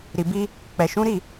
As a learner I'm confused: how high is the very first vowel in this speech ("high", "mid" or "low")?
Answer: high